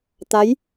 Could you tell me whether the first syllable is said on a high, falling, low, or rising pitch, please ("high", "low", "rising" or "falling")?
rising